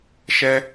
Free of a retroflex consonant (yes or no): yes